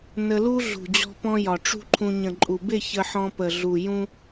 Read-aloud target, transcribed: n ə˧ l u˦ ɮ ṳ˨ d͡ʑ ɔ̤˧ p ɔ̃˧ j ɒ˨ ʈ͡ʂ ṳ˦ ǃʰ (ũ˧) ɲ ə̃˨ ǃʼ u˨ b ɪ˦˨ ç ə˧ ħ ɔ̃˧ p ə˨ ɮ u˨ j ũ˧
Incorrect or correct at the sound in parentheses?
correct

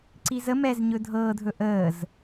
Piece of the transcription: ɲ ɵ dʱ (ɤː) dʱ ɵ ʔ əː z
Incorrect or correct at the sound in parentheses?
correct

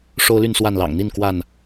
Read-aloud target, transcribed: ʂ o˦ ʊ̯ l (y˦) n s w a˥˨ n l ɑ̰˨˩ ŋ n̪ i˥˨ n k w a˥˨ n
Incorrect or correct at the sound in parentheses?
incorrect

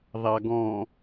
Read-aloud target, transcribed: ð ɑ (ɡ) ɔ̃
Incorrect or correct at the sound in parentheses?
correct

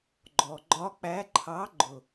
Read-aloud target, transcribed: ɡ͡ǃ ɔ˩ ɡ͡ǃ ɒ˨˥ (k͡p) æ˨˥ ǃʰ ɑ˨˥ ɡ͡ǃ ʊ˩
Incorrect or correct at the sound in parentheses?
correct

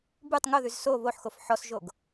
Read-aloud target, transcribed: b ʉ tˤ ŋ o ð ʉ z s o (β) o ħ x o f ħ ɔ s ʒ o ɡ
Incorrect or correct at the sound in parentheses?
correct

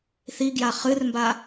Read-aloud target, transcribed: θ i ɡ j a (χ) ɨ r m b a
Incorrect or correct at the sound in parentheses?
correct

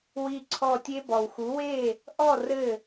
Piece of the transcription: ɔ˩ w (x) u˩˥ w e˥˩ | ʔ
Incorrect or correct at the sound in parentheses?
correct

